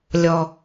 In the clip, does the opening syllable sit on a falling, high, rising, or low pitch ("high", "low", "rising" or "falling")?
low